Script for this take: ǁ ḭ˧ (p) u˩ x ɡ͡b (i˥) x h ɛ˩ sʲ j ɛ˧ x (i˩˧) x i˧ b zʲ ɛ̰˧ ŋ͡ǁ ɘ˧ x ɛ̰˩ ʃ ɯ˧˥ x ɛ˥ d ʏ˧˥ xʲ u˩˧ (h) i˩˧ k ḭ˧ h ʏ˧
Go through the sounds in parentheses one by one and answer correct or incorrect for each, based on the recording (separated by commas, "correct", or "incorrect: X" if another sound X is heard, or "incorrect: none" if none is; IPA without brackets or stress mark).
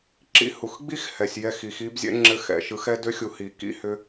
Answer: incorrect: h, correct, correct, correct